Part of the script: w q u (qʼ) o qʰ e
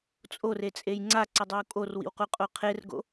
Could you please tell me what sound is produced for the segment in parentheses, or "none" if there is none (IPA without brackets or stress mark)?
qʼ